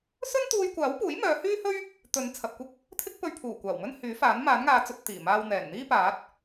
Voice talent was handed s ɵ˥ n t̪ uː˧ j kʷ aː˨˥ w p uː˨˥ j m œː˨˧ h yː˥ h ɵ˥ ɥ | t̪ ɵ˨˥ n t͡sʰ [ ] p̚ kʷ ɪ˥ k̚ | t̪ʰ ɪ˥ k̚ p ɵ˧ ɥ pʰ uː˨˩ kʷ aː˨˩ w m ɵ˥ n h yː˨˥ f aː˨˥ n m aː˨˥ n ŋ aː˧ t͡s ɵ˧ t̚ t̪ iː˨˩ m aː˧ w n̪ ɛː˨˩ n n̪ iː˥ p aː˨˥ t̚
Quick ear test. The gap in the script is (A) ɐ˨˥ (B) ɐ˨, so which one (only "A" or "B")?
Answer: B